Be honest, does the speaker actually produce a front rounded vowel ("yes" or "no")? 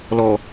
no